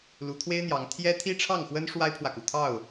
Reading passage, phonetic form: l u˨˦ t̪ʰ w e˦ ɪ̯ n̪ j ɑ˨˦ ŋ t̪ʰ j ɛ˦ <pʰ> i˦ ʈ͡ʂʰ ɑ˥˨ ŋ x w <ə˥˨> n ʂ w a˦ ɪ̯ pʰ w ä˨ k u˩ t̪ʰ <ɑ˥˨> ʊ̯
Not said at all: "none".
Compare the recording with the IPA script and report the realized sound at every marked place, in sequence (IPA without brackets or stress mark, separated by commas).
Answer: t̪ʰ, ə˦, ɑ˥˨